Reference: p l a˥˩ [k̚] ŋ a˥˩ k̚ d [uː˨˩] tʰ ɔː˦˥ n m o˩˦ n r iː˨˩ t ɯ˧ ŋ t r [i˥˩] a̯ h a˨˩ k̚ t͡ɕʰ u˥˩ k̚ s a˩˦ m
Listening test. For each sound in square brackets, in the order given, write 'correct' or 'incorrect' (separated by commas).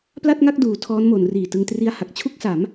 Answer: incorrect, incorrect, incorrect